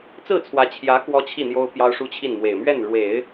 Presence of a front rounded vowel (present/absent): absent